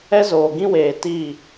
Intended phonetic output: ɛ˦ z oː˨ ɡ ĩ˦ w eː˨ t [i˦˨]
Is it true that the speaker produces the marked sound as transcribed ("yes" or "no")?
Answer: yes